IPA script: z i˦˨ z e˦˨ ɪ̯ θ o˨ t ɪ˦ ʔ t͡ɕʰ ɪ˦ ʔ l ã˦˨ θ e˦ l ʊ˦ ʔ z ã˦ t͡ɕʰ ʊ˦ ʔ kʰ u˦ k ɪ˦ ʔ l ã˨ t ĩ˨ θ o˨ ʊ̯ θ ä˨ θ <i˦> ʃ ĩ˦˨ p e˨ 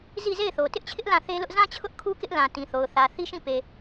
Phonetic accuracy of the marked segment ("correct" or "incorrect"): correct